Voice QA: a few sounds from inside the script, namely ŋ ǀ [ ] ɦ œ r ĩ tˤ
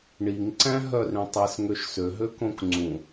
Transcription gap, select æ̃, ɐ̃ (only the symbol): æ̃